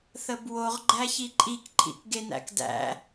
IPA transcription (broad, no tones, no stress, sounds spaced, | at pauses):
θ ə b w o ʁ ɡ͡ǃ æ ç i ǃʼ i k ǃʰ ḭ k ɡ e n æ̰ k d æ̰